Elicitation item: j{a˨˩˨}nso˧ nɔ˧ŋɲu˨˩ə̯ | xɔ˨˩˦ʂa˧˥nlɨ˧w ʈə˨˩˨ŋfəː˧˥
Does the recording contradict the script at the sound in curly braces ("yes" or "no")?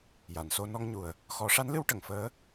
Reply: no